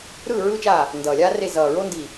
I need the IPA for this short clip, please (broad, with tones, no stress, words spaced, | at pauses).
ɾɯː˦˨ ɹɯː˦t͡ʃaː˦˨ | ndʌː˨˩lʲaː˦re˦˨ zʌː˨˩ɹo˦ ndi˦˨